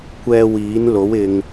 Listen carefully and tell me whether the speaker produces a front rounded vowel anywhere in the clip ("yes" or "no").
no